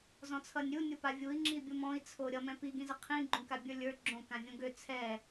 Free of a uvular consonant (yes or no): no